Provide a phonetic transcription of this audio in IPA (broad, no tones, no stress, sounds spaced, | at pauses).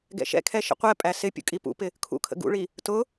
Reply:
ɡ ɛ̰ ʃ ɛ̰ kʰ ɛ ʃ ə̰ qʷ ɛ pʼ æ s ɪ pʲ ṵ kʼ i p ṵ p ɪ | kʰ ṵ kʰ ə̰ ɡ ṵ ɭ i | t ʊ